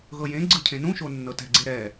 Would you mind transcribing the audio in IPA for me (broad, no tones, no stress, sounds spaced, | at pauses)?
ɣ ɤ j ẽ ɡ͡ǀ ɯ cʰ ẽ n ũ ʃ o nː ɤ t ɛ̤ ɡ͡ǀ e ɾ ɛ